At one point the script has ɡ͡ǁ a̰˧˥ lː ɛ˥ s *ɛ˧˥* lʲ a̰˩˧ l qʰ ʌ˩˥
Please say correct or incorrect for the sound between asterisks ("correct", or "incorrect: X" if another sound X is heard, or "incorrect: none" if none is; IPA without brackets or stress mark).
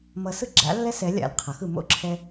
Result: correct